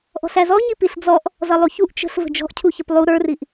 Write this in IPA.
ʔ ɔ̤ ɬ æ z ɔ ɲ i p i ɬ d͡z ɔ ʔ | z ʌ lˠ u ç u ʔ t͡ʃ ə̤ ɬ v ə̤ d͡ʒ ɔ̤ ʔ cʰ u ç ə p lˠ u ɾ ə˞ r i ʔ

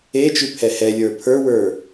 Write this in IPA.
e t͡ʃ ʉ pʰ ɛ h ɛ lʲ ə˞ pʰ ə˞ w ə˞

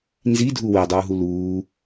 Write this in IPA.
n z i dʱ u w e dˤ uː ɦ u l uː

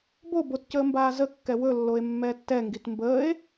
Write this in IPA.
b o b o t c əː m b aː z ə kː ɛ w ɵ lː o e̯ mː ɛ tː ɛ ŋ ɡ i t m b əː e̯

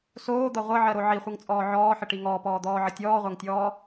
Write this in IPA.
s oː d̪ ʌ ʁʷ ʌ ʕ ɜ ɾ o ʕ i χʷ ɨ ŋ t͡sʼ ɔː ʕ ɔː ħ ə ʈ i ŋ ɔː p ɔː d̪ ɔː ʕ ə tʲ ɔː ʁʷ a ŋ tʲ ɔː

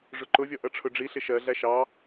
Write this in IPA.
ʐ ʊ ǃ ʊ vʲ ɔ ʔ ʌ ʈ͡ʂʰ ʊ ɖ͡ʐ i ɬ ɪ ʃ ɜ ɮ æ ʃ ɑ

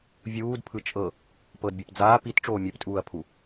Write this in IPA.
vʲ uː d pʰ ɯ t͡ʃʼ ɤ | p ɤ d bʲ ɤ p d͡z aː p i t ʈ͡ʂ oː mʲ e p tʼ uː ɐ̯ pʰ u

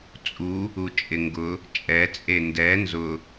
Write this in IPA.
t͡sʼ u | u t͡ʃʼ ɪ ŋ ɡ ʊ | t͡ʃʼ ɛ t͡sʼ e n d ɛ n z ʊ

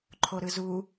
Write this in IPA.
ǃʰ o ɾ ɯ z u

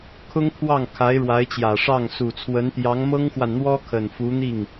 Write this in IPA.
kʰ ʊ˥ ŋ pʰ w ɑ˥˩ ŋ kʰ a˧˥ ɪ̯ ɻ w a˧˥ ɪ̯ t͡ɕ j ä˨˩ ʂ ɑ˥˩ ŋ s u˨˩ t͡sʰ w ə˧˥ n t̪ j ɑ˧˥ ŋ m ɤ˥ ŋ x w a˨ n n̪ w ɔ˥ kʰ ə˨˩ n f u˧˥ n̪ i˥˩ ŋ

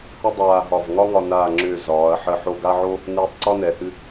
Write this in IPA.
h ə˥ dˤ aː˧ ɦ ɒ˧˩ v ŋ ɒ˥ ŋ ɒ˧ n aː˧˩ ŋ͡ǁ ʏː˧˩ z ɒː˩˧ ɐ̯ ħ ə˧˩ ħ o˧ ɡ a˥ ʕ o˥ | n ɨː˧ tˤ ǀ ɒ˥ n ɛ˩˧ h ɨ˧

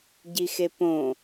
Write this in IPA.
ɟ i x e p õ

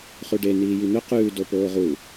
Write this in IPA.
χ ʉ ɖ e n iː j i n̪ ɵ q ʉː d o p oː ʁ u

